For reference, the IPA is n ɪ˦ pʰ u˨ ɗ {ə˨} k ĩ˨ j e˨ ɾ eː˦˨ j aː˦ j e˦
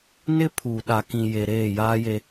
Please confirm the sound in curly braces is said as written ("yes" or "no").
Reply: no